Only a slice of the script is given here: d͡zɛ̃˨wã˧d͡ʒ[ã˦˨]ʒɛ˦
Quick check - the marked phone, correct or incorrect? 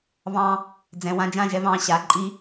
correct